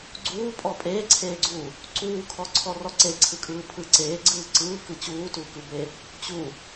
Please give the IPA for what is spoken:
ɡ͡ǀ uː pʼ ɔ pʼ eː ǀʰ eː ɡ͡ǀ uː | ǀ uː kʰ ɔ ǀʰ ɔ r ɔ ǀ e ǀʰ ɯ kʼ ɯː pʰ ɯ ǀ eː ɡ͡ǀ ɯː ǀ ɯː k ɯ t͡ɕ uː t uː k ɯ b e | t͡ɕ u

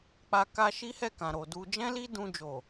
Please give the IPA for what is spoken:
k͡p a˧ k a˧ ʃ i˦ h ɛ˦˨ k ã˨ ɾ o˨ d u˧ d͡ʒ ɛ̃˦ l i˦ d ũ˧ d͡ʒ o˨

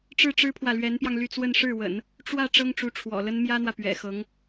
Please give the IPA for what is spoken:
ʈ͡ʂ ɻ̩˥˩ ʈ͡ʂ ɻ̩˥ pʰ w ä˨ l ɥ ɛ˧˥ n p j ɑ˧ ŋ l y˥˧ t͡s w ə˥˧ n ʂ ɻ̩˥˩ w ə̰˨˩˦ n | ʈ͡ʂ w ä˥˩ ʈ͡ʂ ɤ˥ ŋ ʈ͡ʂ u˧˥ ʈ͡ʂʰ w ɔ̰˨˩ l ə˥ n m j ä˥ n̪ w ä˨ p ɥ ɛ̰˨˩ x ɤ˧˥ ŋ

